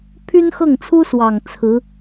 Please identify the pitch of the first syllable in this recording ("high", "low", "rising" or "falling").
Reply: high